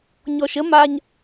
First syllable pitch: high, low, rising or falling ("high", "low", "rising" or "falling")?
low